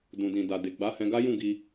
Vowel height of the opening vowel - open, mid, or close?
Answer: close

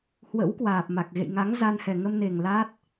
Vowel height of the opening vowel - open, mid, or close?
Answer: mid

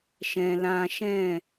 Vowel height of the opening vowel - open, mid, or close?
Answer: mid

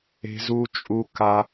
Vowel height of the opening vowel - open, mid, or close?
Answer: mid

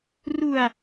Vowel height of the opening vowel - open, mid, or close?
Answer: close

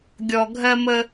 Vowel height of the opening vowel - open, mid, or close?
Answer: mid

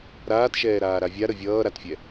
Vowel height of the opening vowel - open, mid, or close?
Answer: open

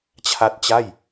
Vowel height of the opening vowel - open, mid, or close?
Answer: open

